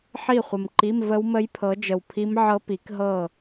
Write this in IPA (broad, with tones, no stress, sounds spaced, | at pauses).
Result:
ħ i˥˨ χʷ ə˨ m ǃ i˧˥˧ m v ə˦˥ w m ə˦˥ j pʰ ɤ˨˦ d͡ʒ ə˨ w pʰ i˦˥ m ʕ ɤ˦˥ p i˨˦ k ɦ ɤ˥˨